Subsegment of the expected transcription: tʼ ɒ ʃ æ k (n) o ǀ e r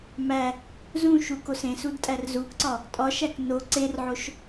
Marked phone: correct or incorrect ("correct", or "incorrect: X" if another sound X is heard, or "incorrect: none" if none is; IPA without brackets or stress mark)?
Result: correct